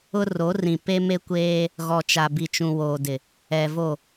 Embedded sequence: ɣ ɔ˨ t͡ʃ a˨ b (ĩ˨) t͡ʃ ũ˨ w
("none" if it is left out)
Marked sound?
i˨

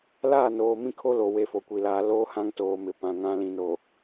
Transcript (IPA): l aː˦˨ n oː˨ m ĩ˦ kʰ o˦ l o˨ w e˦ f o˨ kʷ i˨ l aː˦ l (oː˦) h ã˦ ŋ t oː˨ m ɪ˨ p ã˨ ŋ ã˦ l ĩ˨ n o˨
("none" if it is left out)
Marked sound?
oː˦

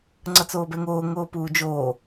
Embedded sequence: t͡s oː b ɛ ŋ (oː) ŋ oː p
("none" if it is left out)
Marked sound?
oː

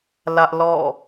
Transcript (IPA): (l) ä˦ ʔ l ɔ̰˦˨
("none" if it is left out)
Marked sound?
l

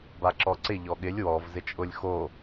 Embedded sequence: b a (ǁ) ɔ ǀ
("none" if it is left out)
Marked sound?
ǁ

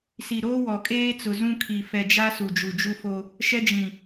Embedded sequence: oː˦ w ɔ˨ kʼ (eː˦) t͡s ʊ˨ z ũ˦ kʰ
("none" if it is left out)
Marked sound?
eː˦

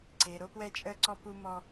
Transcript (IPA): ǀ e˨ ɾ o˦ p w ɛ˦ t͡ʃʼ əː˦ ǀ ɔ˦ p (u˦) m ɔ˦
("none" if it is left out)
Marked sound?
u˦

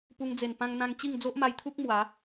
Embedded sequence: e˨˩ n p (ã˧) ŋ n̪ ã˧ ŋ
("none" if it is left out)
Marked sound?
ã˧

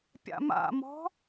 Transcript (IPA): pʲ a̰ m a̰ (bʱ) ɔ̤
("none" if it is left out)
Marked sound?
m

